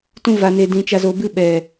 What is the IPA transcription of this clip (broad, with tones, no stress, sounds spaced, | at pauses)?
t ũ˧ v a˨ n e˨ d ĩ˨ t͡ʃ a˨ z o˨ b ɨ˧ ɓ ɛ˨